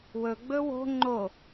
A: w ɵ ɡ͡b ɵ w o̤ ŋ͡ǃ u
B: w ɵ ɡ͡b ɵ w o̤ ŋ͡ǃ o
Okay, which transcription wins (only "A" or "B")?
B